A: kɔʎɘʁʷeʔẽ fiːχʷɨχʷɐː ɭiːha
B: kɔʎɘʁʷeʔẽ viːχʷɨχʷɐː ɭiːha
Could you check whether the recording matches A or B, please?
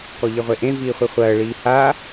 B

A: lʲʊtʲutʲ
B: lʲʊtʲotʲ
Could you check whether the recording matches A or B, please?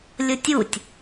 A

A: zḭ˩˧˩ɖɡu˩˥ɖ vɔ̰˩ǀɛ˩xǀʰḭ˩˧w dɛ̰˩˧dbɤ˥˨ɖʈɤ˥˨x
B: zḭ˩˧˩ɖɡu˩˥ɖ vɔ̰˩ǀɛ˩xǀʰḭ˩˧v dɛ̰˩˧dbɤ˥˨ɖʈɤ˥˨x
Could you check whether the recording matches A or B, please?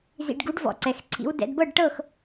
A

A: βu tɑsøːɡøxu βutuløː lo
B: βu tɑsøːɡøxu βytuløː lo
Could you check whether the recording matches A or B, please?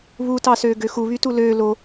B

